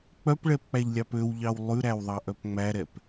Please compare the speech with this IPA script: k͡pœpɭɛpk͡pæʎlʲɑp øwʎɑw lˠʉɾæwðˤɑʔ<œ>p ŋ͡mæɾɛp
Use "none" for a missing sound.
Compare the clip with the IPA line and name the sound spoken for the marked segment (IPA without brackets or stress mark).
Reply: œ